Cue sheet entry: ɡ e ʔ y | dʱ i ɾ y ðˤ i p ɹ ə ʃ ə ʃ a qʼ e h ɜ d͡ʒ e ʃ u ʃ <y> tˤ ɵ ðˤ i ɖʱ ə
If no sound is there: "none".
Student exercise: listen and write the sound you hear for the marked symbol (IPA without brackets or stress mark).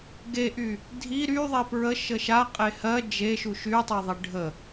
y